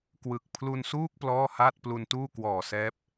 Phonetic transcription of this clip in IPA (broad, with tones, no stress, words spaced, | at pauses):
kwɯ˨˩k̚ pʰlu˧nsuː˥˩k̚ plɔː˥˩haː˥˩t̚ plu˧ntuː˥˩kwɔː˨˩sɛː˦˥p̚